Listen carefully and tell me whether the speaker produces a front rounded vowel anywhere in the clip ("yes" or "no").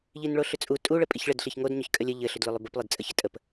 yes